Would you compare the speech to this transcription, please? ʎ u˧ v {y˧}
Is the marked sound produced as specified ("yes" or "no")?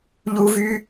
yes